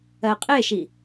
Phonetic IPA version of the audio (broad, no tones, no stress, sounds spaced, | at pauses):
ɜ qʼ e ʃ i